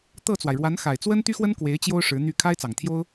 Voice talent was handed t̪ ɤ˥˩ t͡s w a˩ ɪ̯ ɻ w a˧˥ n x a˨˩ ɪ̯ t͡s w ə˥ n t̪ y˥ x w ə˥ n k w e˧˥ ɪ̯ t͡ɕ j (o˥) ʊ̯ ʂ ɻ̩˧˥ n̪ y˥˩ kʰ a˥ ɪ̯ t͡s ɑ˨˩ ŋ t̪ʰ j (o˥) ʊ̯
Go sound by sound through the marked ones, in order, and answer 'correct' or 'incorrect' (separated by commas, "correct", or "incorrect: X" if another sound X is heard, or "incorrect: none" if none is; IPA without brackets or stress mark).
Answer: correct, correct